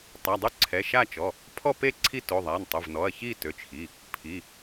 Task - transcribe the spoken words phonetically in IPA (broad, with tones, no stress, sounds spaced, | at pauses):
tˤ a˩˧˩ dˤ y˥˧ ǀʰ ɛ˩˧˩ ʃ a˥˧ t͡ʃ ɔ˩˧˩ | pʰ ɔ˥˧ p e˥˧ ǀʰ i˥˧ t o˩˧˩ ðˤ a˩˧˩ n tˤ ø˩˧˩ v n ɔ˩˧˩ ɐ̯ ç i˥˧ t ø˩˧˩ t͡ʃ x i˩˧˩ | pʰ i˩˧˩